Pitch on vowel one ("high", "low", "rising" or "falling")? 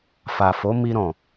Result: low